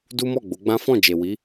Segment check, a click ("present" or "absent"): absent